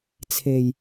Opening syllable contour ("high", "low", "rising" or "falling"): low